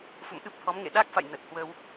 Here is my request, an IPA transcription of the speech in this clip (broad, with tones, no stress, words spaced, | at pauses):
fṵ˧˨mʔɨ˦˥p̚t̪ʰɔ˨˦mŋḛ˧˨ ɗa˦˥k̚fa̰˧˨j nə˨˩t̚hwə˧w